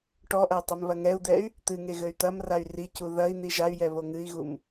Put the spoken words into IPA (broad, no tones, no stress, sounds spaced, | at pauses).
ʈ ɔ ʔ ɐ y̯ tˤ e m β ɐ ŋ ɛ u̯ d̪ ɛ y̯ | t̪ ɨ ŋ e ɣ ɘ y̯ t̪ ɐ m r a y̯ r i c u ð ɐ i̯ n̪ i ʒ a y̯ j ɛ β o ŋ ɨ i̯ ɣ u m